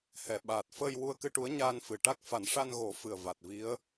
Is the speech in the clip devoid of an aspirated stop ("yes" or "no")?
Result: yes